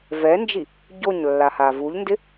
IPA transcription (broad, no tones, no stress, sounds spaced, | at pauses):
v ɛ n d͡ʒ i | ɟ o ɲ lː a h a v u ʎ n d ɪ